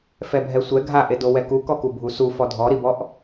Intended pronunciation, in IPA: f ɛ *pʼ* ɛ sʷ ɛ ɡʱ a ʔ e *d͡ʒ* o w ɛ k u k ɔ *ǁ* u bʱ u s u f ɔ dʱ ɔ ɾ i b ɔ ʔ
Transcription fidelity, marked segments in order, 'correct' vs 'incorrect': incorrect: bʱ, incorrect: d, incorrect: k

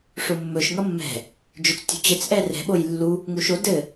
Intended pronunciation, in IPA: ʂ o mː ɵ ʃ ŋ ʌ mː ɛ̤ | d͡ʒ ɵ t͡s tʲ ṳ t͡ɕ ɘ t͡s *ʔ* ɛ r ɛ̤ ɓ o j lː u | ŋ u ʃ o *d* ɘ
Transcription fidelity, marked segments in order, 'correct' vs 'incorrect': correct, correct

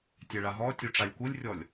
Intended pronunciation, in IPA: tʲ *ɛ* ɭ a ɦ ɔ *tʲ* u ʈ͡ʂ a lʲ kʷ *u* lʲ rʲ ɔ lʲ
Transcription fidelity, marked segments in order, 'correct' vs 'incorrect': correct, correct, incorrect: ɯ

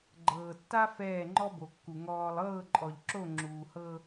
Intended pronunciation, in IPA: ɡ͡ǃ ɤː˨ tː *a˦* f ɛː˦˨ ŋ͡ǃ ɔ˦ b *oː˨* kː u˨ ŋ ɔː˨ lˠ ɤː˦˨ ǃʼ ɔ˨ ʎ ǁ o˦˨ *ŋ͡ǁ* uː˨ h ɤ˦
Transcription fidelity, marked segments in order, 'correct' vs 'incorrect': correct, incorrect: o˨, correct

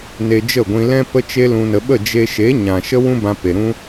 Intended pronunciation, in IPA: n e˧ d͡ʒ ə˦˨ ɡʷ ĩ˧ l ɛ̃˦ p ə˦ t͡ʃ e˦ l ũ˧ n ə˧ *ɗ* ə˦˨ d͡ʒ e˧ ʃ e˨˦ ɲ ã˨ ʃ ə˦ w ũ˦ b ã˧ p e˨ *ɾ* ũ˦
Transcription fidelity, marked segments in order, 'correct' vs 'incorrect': incorrect: ɓ, correct

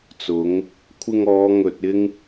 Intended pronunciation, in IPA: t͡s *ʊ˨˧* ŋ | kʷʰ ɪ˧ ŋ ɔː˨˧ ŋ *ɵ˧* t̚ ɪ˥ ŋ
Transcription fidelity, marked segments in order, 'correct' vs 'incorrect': correct, correct

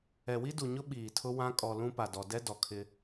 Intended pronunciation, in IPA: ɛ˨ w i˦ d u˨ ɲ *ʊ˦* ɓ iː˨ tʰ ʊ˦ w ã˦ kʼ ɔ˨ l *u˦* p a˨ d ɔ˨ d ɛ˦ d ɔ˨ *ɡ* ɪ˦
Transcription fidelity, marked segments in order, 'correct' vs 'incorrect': correct, incorrect: ũ˦, incorrect: kʰ

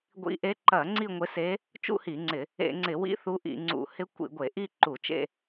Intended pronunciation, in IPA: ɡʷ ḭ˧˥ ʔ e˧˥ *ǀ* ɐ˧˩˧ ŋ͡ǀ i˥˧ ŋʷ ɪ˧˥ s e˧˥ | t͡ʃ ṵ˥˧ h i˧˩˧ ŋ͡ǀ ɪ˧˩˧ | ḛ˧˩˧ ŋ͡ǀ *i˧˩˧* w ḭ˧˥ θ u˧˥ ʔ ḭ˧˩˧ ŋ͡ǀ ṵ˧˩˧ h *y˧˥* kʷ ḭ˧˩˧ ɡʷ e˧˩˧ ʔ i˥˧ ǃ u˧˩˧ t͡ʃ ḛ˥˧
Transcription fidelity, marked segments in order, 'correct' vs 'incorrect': incorrect: ǃ, incorrect: ɪ˧˩˧, incorrect: ɪ˧˥

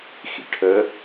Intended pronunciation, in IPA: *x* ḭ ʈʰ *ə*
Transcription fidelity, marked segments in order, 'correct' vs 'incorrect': correct, correct

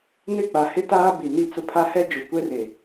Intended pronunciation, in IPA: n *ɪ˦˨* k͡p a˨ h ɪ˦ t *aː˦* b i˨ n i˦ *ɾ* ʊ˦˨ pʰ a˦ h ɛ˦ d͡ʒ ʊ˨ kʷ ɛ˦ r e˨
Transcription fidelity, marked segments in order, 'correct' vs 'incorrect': correct, correct, incorrect: t͡s

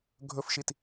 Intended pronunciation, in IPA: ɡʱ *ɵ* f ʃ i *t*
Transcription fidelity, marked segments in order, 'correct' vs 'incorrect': correct, correct

